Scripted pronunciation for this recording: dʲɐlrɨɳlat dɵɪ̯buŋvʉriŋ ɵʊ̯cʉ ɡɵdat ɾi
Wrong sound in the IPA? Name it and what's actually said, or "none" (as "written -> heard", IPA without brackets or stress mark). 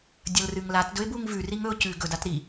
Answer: ɳ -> ŋ